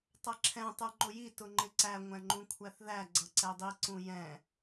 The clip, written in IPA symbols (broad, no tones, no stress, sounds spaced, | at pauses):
tˤ ʌ ǁʰ ɛ̃ tˤ ə˞ ŋ͡ǃ ʊ j i t ʊ ŋ͡ǃ ɪ ǀ æ ŋʷ æ̃ ŋ͡ǃ ũ kʷʰ æ θ ð æ ɡ͡ǀ ʌ ǀ ɛ dˤ i ǀ ũ j ɛ̃